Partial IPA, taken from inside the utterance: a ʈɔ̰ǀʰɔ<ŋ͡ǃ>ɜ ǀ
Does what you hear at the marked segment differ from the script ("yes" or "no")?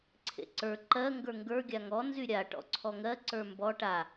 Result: yes